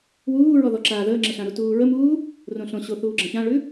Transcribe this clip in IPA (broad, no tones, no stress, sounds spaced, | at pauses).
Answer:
w uː ɹ ɔ ð ɔ ǁ aː ð əː ŋ͡ǁ ə ɬ ã ɾ u t uː ɹ ə m uː | r õ ɬ õ ɕ o θ uː ɡ͡ǁ ə̃ ç ã ɭ ʉ